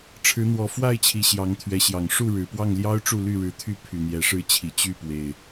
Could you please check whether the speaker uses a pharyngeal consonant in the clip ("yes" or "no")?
no